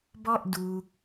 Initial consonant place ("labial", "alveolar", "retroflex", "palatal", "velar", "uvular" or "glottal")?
labial